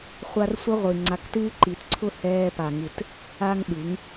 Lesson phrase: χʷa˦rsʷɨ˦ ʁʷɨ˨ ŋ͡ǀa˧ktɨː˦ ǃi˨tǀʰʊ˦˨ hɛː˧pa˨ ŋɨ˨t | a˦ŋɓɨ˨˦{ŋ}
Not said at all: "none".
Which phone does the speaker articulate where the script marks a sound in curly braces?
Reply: ŋ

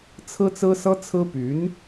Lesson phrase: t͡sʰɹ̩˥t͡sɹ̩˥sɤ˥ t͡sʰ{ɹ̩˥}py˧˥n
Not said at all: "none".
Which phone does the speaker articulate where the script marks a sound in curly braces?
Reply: ɹ̩˥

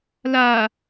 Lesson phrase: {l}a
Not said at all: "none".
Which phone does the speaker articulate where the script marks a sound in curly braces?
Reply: l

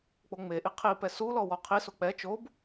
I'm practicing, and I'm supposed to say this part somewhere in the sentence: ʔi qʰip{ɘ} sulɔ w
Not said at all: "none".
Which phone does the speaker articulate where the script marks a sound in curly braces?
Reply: ɛ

